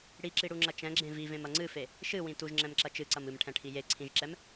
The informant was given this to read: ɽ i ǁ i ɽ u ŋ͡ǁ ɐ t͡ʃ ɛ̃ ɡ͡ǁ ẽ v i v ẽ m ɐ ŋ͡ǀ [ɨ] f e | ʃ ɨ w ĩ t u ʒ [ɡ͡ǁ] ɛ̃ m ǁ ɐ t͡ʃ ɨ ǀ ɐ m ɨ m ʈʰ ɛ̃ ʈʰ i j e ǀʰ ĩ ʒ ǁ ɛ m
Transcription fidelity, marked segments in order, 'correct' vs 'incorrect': correct, incorrect: ŋ͡ǁ

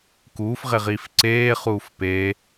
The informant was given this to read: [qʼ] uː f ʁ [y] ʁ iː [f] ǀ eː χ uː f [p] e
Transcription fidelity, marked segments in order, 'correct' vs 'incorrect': incorrect: k, incorrect: e, correct, correct

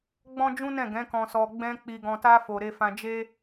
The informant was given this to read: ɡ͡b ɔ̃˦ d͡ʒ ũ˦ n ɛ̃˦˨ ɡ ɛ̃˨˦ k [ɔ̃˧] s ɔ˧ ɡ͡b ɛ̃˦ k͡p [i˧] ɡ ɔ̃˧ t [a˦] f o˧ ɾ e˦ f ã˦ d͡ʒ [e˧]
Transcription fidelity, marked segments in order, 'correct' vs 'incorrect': correct, correct, correct, incorrect: e˦

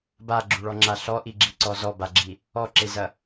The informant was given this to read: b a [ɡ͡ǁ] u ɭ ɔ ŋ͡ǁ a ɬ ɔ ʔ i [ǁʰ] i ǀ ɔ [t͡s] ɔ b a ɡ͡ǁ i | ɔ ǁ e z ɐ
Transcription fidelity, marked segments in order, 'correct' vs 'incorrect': correct, incorrect: ɡ͡ǁ, incorrect: z

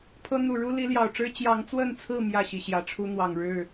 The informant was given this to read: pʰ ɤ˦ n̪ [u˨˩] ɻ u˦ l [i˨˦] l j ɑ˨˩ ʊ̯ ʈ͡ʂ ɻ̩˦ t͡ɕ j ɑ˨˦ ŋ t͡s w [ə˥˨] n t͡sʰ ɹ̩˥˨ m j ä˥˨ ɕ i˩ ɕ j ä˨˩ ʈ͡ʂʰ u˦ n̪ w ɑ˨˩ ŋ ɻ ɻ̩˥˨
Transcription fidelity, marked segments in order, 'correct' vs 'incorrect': correct, correct, correct

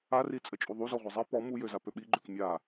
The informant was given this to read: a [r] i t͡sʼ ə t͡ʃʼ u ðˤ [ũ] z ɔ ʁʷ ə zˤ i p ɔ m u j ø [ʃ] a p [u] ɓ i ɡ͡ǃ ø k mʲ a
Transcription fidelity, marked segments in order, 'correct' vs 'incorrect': correct, incorrect: u, incorrect: z, incorrect: ø

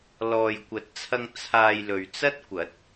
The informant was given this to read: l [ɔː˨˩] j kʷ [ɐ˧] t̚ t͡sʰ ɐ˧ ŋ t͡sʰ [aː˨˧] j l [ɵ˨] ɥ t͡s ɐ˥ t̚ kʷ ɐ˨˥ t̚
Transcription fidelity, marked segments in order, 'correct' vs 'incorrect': incorrect: ɔː˨, incorrect: ɐ˨˥, incorrect: aː˧, correct

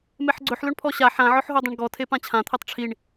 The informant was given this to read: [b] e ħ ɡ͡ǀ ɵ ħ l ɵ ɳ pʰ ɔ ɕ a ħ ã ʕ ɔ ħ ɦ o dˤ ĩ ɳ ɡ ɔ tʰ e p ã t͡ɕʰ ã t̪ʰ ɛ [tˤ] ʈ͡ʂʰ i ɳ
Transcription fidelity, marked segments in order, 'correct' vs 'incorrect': incorrect: m, correct

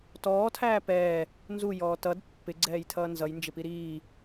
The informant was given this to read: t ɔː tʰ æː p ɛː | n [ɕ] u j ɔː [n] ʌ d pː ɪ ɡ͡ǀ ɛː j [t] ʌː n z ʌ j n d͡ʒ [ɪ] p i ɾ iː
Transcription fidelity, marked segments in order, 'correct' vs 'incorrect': incorrect: z, incorrect: t, incorrect: tʰ, correct

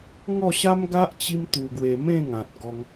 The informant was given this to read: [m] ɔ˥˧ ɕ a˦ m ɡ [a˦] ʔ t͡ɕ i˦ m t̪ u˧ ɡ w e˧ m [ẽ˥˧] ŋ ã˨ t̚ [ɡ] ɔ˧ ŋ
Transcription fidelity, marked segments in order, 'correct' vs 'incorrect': incorrect: ŋ, correct, correct, correct

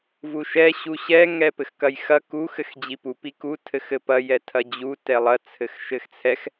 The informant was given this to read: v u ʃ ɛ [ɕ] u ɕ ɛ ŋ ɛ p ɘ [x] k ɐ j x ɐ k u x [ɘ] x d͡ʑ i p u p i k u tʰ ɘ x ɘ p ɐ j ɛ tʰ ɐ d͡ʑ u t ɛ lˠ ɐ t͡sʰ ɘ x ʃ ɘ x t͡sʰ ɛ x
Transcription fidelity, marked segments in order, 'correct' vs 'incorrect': correct, correct, correct

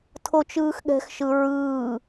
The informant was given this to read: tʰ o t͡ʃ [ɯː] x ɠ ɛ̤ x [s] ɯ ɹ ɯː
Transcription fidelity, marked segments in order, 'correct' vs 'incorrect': correct, incorrect: ʃ

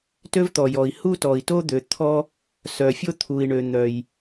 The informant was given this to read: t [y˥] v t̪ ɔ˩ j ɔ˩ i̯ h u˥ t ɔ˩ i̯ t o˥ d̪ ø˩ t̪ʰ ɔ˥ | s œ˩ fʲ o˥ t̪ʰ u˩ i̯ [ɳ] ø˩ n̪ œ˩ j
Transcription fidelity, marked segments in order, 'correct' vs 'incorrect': incorrect: ø˥, correct

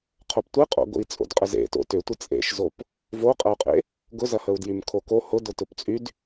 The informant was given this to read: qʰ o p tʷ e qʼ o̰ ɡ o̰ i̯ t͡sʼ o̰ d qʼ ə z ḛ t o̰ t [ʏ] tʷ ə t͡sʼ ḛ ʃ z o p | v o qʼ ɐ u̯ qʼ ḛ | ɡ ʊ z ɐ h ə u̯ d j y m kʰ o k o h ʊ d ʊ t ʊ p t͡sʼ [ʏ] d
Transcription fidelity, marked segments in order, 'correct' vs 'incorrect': correct, incorrect: y

